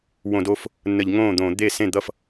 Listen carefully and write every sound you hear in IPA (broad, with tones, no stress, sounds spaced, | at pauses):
w õ˧˩˧ d o˥˩ f | nː ə˧˩˧ ʎ ŋ õː˥˩ d̪ õː˧˩˧ d̪ e˥˩ s ẽ˥˩ d̪ ʌ˥˩ f